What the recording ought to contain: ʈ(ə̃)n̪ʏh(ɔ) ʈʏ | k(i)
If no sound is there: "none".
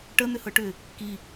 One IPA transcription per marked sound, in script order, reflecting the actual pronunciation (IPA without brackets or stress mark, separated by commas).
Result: ə, ɤ, i